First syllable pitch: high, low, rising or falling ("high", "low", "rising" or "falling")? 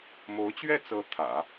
rising